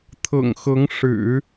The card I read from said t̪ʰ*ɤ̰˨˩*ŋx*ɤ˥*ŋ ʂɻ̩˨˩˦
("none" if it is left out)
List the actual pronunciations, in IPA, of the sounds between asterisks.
ɤ̰˨˩, ɤ˧˥

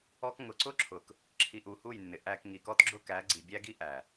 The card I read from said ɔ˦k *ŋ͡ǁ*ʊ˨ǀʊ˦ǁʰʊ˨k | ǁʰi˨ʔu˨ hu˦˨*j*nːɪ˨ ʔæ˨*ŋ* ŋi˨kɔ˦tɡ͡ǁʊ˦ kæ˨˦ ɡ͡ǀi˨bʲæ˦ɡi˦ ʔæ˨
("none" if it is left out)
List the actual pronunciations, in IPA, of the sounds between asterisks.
ŋ, j, k

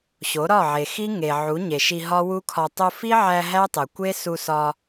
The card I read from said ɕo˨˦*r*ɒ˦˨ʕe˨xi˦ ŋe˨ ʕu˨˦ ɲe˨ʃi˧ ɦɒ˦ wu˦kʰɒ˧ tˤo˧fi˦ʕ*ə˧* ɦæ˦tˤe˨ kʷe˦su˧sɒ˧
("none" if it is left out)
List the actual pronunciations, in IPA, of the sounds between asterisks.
ɾ, æ˧

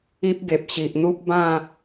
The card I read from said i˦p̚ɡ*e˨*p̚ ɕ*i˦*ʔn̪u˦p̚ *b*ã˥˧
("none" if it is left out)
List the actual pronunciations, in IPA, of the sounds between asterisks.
e˨, i˨, b

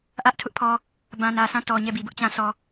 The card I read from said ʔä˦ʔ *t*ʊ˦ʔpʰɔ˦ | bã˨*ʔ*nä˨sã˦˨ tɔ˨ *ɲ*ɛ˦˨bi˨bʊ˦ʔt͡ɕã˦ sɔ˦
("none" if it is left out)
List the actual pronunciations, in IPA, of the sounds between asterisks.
tʰ, none, ɲ

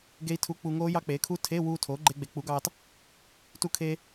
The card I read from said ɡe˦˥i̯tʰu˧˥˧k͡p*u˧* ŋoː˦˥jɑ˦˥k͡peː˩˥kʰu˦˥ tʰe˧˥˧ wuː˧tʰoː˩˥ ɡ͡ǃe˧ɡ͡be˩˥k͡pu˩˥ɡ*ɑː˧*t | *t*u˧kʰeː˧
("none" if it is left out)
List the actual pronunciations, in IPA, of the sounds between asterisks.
u˧, ɑː˧, t

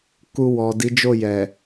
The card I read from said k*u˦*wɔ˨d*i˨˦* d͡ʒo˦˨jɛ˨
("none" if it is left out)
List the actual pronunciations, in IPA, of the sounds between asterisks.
u˧, i˨˦

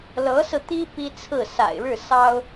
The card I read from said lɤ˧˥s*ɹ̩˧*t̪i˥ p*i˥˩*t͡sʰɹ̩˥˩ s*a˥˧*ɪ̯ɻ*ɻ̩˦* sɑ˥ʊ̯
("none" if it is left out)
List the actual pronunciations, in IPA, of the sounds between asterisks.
ɹ̩˧, i˥, a̰˨˩, ɻ̩˥˩

